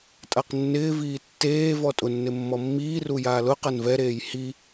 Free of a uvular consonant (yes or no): no